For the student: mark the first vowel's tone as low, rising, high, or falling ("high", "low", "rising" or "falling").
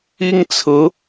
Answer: high